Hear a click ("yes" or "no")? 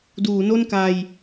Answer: no